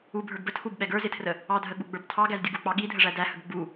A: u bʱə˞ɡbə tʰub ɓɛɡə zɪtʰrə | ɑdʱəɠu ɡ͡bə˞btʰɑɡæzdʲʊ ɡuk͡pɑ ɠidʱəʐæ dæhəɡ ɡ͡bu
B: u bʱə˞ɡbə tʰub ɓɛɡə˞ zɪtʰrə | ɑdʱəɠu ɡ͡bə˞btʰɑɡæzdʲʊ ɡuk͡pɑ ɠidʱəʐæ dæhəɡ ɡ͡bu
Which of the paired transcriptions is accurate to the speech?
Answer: B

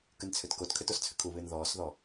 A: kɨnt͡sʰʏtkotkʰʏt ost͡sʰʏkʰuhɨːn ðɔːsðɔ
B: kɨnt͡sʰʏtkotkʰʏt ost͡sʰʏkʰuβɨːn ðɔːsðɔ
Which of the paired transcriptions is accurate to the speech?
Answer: B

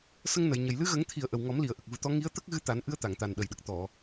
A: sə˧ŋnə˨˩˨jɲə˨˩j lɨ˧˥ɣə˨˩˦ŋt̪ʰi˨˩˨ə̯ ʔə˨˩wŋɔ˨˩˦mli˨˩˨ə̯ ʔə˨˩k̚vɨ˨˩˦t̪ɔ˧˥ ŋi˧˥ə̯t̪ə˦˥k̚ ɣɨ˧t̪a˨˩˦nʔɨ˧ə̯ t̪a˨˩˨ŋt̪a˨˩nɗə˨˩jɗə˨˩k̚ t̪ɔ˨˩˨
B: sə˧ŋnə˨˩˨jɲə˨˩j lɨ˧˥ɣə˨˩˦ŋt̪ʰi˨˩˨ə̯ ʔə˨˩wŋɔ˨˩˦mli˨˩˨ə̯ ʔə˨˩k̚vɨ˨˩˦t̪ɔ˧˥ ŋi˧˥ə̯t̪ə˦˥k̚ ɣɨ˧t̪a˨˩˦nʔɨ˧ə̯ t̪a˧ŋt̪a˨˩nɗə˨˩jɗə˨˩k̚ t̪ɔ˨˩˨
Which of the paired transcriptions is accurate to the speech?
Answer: A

